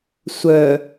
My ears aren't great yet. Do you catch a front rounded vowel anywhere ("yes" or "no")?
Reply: yes